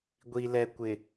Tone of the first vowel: low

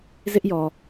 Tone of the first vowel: high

